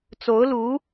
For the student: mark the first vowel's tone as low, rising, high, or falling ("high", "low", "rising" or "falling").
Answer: rising